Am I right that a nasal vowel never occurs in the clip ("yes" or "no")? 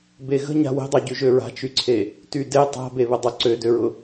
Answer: yes